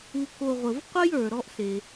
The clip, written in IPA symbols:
u˨ k o˨ ʁʷ ə˩ v qʷ ɤ˥ j ə˞˩ ɾ ɔ˦ ʔ s e˩

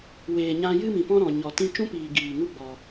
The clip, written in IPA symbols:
w eː˨ ɲ ã˧ j ɨ˦ m ĩ˨ p ɔ̃˦ ɾ ɔ̃˨ ɲ ɔ˨ t ĩ˦ t͡ʃ ũ˦ p iː˨ ɡ iː˨ ŋ u˦ ɡ͡b ɔ˨

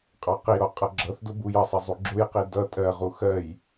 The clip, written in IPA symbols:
qʼ ɑ q i ɾ ɔ qʼ ʌ ɡ͡ǁ ʌ θ d ʊ b u j ʌ sˤ ʌ zˤ u ɡ͡ǁ ʊ j q i d ʌ tʼ ɜ ʁ u x ɜ j

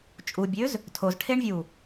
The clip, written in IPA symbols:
t͡ʃʼ u bʲ ø z | tʰ o z ʈʰ e ɳ vʲ u

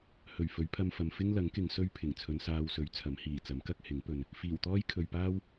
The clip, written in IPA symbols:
h ɵ˨˩ ɥ f ɵ˨˥ ɥ pʰ ɐ˧ m f ɐ˨ m f ɪ˥ ŋ l ɐ˨˥ ŋ k ɪ˨˧ ŋ s ɵ˥ ɥ pʰ ɪ˨˩ ŋ t͡sʰ ɵ˨˧ n s aː˧ w s ɵ˨˥ ɥ t͡sʰ ɐ˨˥ m h iː˨˩ t͡s ɐ˨˥ m k ɐ˥ k̚ h ɪ˨˥ ŋ p ɵ˨ n | f iː˨˩ w t̪ ɔː˥ j kʰ ɵ˨ ɥ p aː˥ w

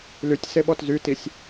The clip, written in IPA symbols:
l y tʲ s e ɓ ɔ t z y t i sʲ

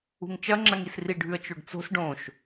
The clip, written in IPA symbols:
ṳ ŋ t͡ʃ ɐ ŋ͡ǁ ɐ ŋ i s r i ɖʱ ʉ ə̯ t͡ʃ o ɖ t͡s o̤ s ɖ õ ʃ

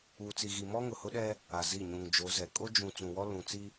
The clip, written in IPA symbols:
uː˨ t͡s i˨ ɣ i˨ m ɔ˦ ŋ ʊ˨ h ʊ˦ ɗ ɛ˦ | a˨ z i˦˨ ɲ ũ˨ ŋ d͡ʒ o˨˦ z ɛ˨ kʼ o˦ d͡ʒ ũ˨ t͡s ũ˨ w ɔ˦ l ũ˨ t͡s i˦

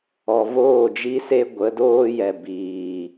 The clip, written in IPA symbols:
ɔ˨ v oː˦˨ d͡ʒ i˦ s e˦ ɡʷ ə˨˦ d oː˦ j ɛ˨ b iː˨

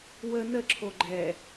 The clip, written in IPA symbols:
w ə n ə ǁʰ o ɡ͡ǃ ɛ

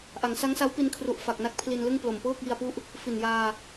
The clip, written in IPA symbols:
ʔ a˩˦ ŋ s a˦˥ ŋ s a˦˥ w p i˧ n kʰ r u˨˩ ʔ f a˨˩ k̚ n a˦˥ k̚ pʰ l i˧ n l ɯ˥˩ ŋ p l o˨˩ m p ɤː˥˩ k̚ j i˧ a̯ p u˦˥ ʔ | f i˨˩ n j aː˧

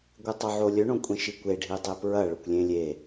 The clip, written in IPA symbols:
ɡʷ ɨ tˤ o ʕ o lʲ ɵ ɳ õ kʷʼ ẽ ʃ i kʷ e ɖʱ i dˤ e p ɹ ɐ ɭ ɵ kʷ lʲ ẽ lʲ e

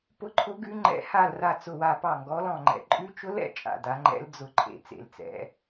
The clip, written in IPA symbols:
p ʊ˧˥ ǃʰ ʊ˧˥ ɡ ʉ˧˥ ŋ͡ǃ ɛ̰˧˥ h a˦˨ l r a˦˨ t͡s ʊ˦˨ w a˦˨ p ɑ˦˨ ŋ ɡ ɔ˧˥ l ɔ̃˦˨ ŋ͡ǃ ɛ̰˧˥ ǃʼ ʉ˧˥ t͡ʃ ʊ˧˥ l ɛ̰˦˨ t͡ʃʼ a̰˦˨ d a˧˥ ŋ͡ǃ ɛ̰˧˥ l d͡z ʊ˦˨ ǃʰ ḛ˦˨ t͡s ḛ˦˨ l t͡s ɛ̰˧˥

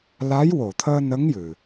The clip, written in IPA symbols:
l a˧˥ j w o˨˩˨ t̪ʰ əː˧ n ə˧˥ ŋ j ɨ˨˩

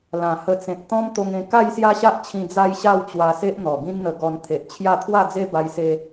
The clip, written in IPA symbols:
l ã˨˩ h ə˧ t͡s ẽ˨ t̚ t̪ ɔ̃˦ m t̪ o˧ ŋ ẽ˧ k a˥˧ j s j a˦ ɕ a˦ ʔ t͡ɕʰ ĩ˧ d͡z a˦ j ɕ a˥˧ w t͡ɕ w a˧ s e˦ ʔ n̪ ɔ˨˩ ɡ ĩ˦ n n̪ ə˧ ɡ ɔ˧ n t̪ʰ e˨ ʔ t͡ɕʰ j a˥˧ t̪ʰ w a˥˧ d͡z e˦ b a˧ j s e˧

